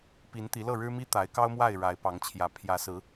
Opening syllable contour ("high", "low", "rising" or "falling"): rising